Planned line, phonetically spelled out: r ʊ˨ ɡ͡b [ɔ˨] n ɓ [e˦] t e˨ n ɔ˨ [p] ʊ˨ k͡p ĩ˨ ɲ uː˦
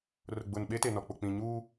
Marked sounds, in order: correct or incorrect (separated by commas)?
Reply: incorrect, correct, incorrect